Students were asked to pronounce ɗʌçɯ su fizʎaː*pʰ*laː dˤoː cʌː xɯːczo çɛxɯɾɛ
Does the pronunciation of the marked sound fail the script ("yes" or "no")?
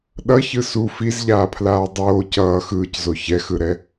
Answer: no